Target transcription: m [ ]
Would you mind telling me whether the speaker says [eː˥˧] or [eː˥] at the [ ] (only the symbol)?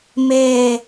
eː˥˧